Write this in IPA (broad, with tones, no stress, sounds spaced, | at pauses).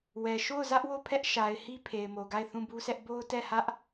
w ɛ˨ ʃ o˦˨ ʊ̯ z ä˦ ʔ w o˦˨ pʰ ɛ˦ ʔ ʃ a˨ ɪ̯ h i˦ pʰ e˨ ɪ̯ m o˨ ɡ a˦˨ ɪ̯ θ ũ˦˨ b u˦ s ɛ˦ ʔ b o˦ ʊ̯ t ɛ˦˨ h ä˦ ʔ